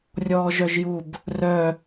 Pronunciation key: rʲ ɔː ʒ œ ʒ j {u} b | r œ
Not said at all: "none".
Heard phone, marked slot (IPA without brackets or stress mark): u